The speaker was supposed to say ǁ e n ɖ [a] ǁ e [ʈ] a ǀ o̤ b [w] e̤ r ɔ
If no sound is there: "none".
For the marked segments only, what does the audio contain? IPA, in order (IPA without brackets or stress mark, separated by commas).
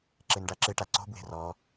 a, ʈ, w